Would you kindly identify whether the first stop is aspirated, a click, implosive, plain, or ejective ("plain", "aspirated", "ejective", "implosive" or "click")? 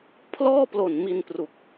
aspirated